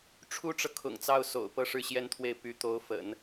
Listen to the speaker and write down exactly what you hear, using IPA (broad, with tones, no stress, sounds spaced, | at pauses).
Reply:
ʈ͡ʂʰ u˥ ʈ͡ʂ ɤ˨ kʰ ʊ̰˨˩ ŋ t͡s ɑ˥˩ ʊ̯ s o̰˨˩ ʊ̯ p ɤ˥ ʂ ɻ̩˥˩ ɕ j ɛ˥ n t̪ʰ w e˥˩ ɪ̯ p y˧˥ t̪ o˧˥ ʊ̯ f ə̰˨˩˦ n